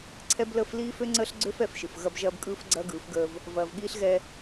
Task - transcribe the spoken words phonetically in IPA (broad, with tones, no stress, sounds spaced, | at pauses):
ǀʰ ɛ˦ b l əː˦ f l iː˦ f ø˦ ŋ͡ǀ əː˦ ɬ ɡ͡ǀ ø˦ f ɛ˨ f ʃ ɯ˨ f ɣ ɐ˦ b ʒ ɐː˦ b kʼ ɯː˦ f ɡ͡ǀ ɐː˦ ɡ ɯː˨˦ f ɡ əː˦ v | v ɐː˨ v ɠ iː˦ ɬ ɣ ɛ˦